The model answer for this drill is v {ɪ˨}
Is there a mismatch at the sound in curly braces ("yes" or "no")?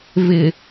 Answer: no